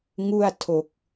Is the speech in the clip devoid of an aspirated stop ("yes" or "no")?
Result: no